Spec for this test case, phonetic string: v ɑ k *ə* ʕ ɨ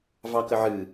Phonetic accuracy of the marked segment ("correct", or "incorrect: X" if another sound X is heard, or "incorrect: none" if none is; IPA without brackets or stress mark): correct